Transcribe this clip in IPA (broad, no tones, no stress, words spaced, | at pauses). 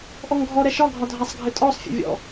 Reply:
ʔɔŋɡʱɔɾɛ ʃɒɡʱɒ dʱasˤɡʱɘtʼɔsˤfʲḛ vʲɔ̰